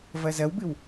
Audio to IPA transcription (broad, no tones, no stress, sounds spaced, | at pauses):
v ɐ z ɐ w b ɨ w